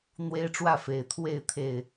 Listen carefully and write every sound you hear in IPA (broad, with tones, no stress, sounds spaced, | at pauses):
n̪ w e˦ ɪ̯ ʈ͡ʂ w ä˥˨ f e˨˩ ɪ̯ t̪ʰ w e˥˨ ɪ̯ t̪ʰ e˨˩ ɪ̯